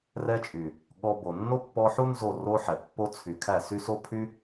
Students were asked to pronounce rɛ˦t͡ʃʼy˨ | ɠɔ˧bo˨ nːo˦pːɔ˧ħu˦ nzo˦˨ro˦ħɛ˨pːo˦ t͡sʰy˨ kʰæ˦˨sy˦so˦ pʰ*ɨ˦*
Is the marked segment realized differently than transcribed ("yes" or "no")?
yes